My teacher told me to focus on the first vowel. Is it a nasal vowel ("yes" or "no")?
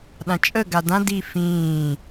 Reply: yes